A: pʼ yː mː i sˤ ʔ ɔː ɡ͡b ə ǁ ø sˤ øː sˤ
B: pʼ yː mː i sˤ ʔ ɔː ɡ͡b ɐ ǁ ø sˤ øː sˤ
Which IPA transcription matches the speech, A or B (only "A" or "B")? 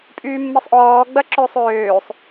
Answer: B